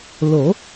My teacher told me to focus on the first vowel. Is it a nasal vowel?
no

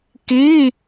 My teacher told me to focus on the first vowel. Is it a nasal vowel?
no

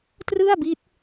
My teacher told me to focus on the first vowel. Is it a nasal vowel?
no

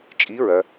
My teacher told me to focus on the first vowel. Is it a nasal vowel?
no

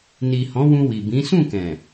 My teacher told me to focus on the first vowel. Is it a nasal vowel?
no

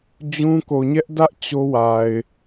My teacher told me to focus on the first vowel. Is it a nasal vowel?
yes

